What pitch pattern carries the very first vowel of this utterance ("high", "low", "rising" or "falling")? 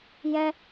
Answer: high